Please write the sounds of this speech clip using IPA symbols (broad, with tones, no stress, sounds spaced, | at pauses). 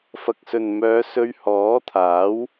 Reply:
f ɐ˨ k̚ s ɵ˨ n m œː˨˧ s ɵ˧ ɥ h ɔː˨˥ t̪ʰ aː˨˥ w